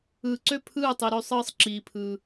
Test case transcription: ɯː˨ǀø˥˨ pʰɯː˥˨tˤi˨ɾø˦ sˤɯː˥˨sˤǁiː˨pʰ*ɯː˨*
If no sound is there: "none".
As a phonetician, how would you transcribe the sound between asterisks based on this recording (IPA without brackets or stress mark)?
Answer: ɯː˨